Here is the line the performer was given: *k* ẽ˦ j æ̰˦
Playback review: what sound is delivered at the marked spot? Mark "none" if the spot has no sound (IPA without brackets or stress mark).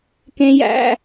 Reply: k